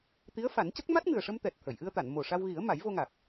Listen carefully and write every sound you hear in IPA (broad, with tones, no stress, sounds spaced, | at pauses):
t̪ i˧˥ ə̯ f a˨˩˦ n c ə˦˥ k̚ m a˦˥ t̚ ŋ ɨ˨˩ ə̯ ʂ ə˧ m t̪ ɛ˨˩ t̚ t̪ʰ ə˨˩˨ j ʔ ɨ˧ ə̯ t̪ a˨˩˨ n m o˨˩ ʂ a˧ w ɣ i˨˩˦ ə̯ m a˨˩˦ j v o˧ ŋ a˨˩ k̚